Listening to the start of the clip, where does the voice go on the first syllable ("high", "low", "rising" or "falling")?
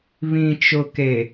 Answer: low